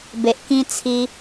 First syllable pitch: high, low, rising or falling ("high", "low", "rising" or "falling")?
low